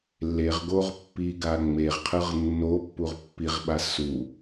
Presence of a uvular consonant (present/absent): present